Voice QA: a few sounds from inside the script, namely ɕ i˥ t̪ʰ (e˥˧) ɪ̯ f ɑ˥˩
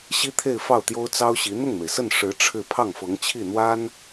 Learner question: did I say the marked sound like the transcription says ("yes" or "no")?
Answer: yes